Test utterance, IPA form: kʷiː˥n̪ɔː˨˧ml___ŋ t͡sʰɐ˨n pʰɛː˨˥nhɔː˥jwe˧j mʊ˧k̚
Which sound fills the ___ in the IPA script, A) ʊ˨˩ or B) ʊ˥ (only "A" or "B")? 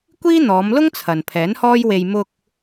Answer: B